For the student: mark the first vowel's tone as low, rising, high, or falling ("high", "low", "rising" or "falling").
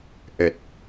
low